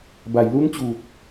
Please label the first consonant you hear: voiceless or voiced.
voiced